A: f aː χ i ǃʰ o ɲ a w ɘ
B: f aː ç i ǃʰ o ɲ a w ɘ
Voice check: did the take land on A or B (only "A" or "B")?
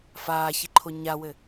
B